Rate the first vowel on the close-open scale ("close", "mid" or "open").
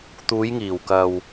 close